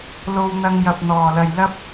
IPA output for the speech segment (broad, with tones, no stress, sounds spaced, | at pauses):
l o˧ w n̪ ɐ˧ ŋ j ɐ˨ p̚ n̪ ɔː˨˩ l ɐ˨ j l ɐ˥ p̚